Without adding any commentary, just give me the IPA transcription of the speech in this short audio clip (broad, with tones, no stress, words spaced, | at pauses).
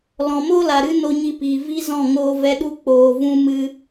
lɔ̃˨moː˦la˨ ɾɨ˦ no˧ɲi˧piː˨ vi˦zɔ̃˦˨ ŋoː˧vɛ˧ ɗu˦k͡poː˧ vũ˦mɨ˦